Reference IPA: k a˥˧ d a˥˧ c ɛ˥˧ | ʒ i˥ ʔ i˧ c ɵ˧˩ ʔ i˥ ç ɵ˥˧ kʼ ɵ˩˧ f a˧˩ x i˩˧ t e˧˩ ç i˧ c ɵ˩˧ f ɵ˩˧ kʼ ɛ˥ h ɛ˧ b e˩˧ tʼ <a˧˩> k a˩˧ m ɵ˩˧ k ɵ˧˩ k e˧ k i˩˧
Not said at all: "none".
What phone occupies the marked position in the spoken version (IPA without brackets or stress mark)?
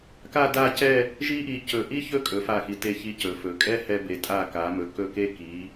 a˧˩